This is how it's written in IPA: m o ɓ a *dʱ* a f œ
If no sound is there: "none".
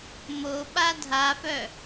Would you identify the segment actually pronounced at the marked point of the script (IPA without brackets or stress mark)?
dʱ